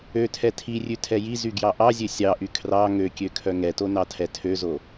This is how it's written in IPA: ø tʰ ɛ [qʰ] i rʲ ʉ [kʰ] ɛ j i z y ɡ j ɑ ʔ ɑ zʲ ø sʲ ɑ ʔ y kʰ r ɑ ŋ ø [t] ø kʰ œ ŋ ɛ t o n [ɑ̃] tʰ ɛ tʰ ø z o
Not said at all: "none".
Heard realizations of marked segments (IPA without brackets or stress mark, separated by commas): tʰ, tʰ, kʲ, ɑ